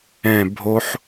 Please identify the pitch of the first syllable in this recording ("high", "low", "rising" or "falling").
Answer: falling